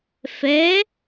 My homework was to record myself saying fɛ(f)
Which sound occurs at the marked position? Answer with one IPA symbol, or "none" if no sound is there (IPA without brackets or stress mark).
none